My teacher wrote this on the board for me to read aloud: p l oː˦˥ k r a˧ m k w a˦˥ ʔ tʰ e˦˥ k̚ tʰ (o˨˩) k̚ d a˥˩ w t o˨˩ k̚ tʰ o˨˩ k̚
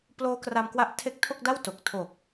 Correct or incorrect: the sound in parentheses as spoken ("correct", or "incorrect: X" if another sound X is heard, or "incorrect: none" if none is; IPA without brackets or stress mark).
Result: incorrect: o˥˩